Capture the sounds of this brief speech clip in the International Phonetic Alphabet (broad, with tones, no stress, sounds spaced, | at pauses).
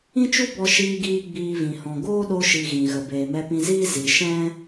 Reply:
ĩ˦ t͡ʃ u˦ b ɔ˧ ʃ iː˧ ɡ iː˧ ɡ͡b iː˧ v ĩ˨ h ɔ̃˨ ɡ oː˦ ɗ o˧ ʃ i˨ ɣ ĩ˨ ɣ ə˨ b eː˨ m ɛ˧ p ĩ˧ z iː˦ z i˨ ʃ ɛ̃˦